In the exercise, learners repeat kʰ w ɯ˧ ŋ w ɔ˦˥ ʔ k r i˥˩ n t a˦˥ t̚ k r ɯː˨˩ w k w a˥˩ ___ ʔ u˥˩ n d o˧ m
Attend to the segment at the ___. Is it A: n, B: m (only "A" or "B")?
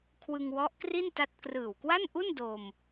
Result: A